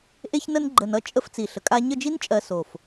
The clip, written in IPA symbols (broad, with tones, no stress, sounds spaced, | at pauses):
ʔ e˥ ç n ə˥ n ɡ͡ǃ ə˧ n ʌ˥ t͡ʃʼ ə˥ f t͡s i˧˩ ɬ ə˧ kʼ a˥ ɲ ə˥˧ d͡ʒ i˥ n t͡ʃʼ ɜ˧ s o˧˩ f